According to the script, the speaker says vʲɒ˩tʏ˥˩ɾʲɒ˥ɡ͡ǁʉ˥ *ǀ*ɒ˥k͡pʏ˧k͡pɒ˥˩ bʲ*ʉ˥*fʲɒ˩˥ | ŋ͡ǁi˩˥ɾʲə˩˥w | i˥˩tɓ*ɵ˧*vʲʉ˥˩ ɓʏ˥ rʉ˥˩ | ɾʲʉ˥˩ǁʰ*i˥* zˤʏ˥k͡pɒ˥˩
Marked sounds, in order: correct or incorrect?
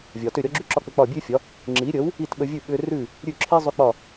incorrect: ǁ, correct, incorrect: ə˧, correct

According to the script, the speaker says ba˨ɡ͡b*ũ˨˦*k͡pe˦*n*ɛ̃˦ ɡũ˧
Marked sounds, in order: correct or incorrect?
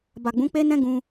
correct, correct

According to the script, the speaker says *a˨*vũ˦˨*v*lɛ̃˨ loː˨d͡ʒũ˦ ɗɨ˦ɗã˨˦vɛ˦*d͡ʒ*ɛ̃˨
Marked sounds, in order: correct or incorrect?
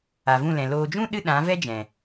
correct, incorrect: none, correct

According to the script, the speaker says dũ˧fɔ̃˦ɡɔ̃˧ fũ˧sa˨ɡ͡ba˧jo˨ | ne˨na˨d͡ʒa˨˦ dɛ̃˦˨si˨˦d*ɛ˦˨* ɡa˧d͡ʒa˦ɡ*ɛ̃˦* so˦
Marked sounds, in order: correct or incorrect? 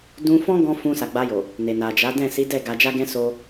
correct, correct

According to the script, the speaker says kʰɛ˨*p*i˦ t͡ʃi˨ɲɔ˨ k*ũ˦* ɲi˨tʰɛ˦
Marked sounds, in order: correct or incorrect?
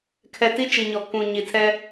incorrect: t, incorrect: ũ˨

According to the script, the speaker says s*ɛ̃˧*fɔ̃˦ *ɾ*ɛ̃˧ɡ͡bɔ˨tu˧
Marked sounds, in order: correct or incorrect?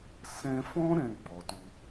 correct, correct

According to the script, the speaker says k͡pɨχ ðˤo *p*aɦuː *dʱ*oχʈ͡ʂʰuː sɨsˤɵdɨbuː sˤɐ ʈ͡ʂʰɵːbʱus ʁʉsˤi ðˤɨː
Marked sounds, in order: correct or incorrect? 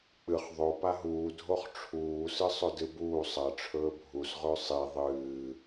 correct, correct

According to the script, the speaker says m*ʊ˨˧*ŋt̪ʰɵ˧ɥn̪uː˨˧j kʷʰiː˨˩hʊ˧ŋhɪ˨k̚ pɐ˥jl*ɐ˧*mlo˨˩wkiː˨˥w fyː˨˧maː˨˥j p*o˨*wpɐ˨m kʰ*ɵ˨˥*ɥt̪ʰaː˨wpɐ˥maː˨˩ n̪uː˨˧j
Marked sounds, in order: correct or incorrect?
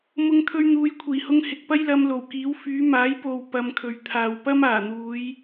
incorrect: ʊ˧, correct, correct, incorrect: ɵ˨

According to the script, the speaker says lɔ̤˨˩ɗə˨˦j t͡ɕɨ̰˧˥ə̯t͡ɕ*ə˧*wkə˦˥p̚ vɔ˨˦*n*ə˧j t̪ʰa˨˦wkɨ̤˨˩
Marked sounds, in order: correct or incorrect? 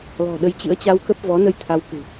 incorrect: a˧, correct

